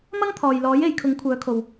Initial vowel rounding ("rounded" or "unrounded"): unrounded